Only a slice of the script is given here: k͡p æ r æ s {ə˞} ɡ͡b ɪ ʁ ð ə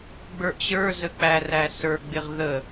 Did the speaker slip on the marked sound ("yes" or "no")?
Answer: no